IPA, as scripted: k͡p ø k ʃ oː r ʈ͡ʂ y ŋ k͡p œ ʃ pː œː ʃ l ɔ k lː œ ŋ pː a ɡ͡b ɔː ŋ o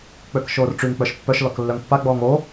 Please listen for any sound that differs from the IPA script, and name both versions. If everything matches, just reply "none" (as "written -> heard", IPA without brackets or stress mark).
œː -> œ